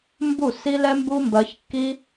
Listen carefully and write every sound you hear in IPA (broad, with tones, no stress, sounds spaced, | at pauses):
m b u˦˨ s i˦ l ɛ˦ m b u˦ m b ɜ˧ ç kː i˦